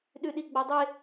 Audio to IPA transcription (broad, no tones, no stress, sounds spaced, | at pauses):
ɗ ʉ ɗ i ɡ͡b ɐ dˤ e